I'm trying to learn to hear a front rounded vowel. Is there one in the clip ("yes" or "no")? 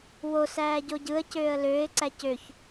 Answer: yes